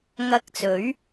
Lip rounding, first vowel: unrounded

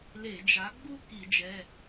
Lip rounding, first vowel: unrounded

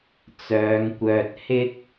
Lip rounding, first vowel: rounded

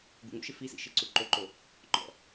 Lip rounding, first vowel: rounded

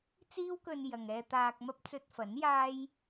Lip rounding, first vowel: unrounded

